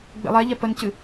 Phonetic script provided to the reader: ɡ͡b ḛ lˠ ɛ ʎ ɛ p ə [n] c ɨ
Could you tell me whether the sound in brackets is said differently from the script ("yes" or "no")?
no